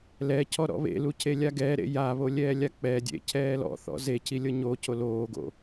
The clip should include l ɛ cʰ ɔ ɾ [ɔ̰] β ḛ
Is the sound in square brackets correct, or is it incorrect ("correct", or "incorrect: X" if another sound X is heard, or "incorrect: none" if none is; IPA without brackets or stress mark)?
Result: correct